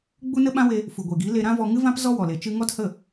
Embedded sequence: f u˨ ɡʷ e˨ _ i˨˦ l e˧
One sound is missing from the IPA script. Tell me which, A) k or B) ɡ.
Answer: B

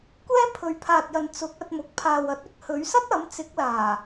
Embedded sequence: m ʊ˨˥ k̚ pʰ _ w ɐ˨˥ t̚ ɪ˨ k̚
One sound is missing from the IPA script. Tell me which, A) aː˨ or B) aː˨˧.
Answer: A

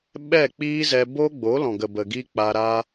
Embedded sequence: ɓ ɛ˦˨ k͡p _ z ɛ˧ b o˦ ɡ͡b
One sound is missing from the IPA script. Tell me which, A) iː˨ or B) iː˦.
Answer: B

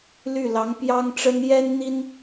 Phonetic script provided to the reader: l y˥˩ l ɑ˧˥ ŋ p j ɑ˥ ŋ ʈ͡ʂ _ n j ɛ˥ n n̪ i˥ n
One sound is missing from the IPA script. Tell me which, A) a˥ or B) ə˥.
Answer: B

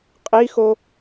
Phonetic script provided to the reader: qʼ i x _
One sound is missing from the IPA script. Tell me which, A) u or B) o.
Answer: B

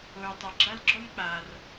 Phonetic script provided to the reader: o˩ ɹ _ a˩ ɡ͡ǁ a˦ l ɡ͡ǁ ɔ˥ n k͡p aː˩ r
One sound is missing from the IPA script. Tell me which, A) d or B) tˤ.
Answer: B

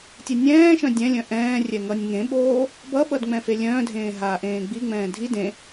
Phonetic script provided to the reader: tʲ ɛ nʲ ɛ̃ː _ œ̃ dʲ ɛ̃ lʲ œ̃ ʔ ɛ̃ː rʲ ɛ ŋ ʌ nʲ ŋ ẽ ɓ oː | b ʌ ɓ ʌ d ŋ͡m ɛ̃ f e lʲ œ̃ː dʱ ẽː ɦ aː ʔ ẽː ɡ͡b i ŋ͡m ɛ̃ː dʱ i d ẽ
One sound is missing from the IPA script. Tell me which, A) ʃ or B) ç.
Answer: A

